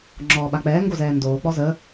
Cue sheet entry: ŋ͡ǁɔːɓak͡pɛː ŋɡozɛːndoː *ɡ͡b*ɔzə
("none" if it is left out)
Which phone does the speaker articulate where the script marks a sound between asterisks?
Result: k͡p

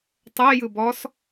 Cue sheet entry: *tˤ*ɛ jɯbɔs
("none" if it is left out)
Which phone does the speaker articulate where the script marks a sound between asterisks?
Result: tˤ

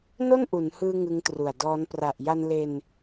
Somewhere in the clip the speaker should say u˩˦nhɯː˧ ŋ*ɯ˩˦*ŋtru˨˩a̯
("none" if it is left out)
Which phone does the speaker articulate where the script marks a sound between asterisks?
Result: ɯ˦˥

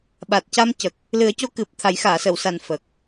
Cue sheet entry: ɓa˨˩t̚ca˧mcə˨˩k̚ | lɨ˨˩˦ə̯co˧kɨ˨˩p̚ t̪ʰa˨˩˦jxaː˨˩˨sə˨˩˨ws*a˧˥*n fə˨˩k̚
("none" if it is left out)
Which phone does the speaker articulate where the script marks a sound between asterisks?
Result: a˨˩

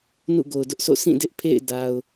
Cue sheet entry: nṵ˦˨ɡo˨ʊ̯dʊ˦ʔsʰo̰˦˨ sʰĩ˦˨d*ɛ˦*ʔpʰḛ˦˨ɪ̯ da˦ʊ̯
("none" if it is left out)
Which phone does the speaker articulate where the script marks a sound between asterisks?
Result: ɪ˦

